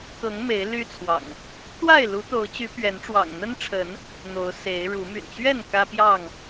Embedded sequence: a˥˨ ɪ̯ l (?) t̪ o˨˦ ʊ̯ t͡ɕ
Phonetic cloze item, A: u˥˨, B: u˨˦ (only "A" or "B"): B